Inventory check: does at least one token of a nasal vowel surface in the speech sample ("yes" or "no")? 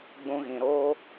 yes